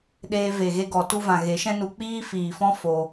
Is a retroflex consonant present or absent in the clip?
absent